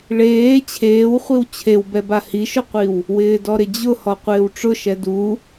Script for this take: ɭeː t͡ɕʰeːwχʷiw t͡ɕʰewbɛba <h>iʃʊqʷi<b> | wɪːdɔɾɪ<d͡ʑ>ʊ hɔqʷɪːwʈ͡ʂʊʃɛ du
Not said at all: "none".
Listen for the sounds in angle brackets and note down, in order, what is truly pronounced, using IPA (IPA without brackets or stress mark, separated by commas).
h, w, d͡ʑ